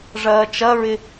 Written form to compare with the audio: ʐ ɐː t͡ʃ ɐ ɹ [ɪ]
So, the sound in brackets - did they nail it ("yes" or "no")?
yes